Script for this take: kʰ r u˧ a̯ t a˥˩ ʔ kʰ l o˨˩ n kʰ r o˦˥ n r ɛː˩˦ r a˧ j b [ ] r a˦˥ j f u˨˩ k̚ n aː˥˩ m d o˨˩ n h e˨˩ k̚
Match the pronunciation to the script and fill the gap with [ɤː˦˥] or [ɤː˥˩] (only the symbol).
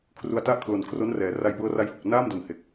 ɤː˦˥